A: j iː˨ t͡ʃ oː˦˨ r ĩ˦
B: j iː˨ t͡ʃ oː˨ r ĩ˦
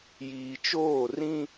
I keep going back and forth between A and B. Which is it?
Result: A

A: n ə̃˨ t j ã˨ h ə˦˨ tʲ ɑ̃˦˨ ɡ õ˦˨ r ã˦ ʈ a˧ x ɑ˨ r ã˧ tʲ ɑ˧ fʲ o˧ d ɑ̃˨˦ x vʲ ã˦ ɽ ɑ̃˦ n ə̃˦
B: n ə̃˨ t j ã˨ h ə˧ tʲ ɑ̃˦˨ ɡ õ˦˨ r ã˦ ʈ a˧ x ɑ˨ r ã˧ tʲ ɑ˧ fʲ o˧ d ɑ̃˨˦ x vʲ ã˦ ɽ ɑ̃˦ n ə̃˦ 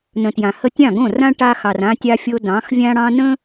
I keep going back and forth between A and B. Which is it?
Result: B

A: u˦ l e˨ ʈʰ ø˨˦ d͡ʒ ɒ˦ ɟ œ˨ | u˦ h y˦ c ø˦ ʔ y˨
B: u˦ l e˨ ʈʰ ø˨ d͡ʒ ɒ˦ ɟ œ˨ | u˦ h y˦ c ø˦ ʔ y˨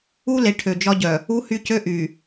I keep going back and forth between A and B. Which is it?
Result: B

